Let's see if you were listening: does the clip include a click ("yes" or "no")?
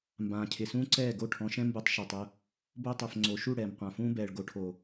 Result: yes